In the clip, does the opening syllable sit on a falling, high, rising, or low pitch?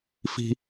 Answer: high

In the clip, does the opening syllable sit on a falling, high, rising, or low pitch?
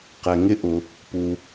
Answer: low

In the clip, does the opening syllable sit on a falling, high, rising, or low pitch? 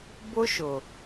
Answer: high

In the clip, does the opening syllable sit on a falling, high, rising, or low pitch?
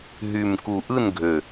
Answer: low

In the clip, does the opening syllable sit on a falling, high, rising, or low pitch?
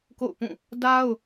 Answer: falling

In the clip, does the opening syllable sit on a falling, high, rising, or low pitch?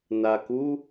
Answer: low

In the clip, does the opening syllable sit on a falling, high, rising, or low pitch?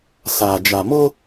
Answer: low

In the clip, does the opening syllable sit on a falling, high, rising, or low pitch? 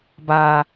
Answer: low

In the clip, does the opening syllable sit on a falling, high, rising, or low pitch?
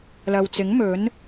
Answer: low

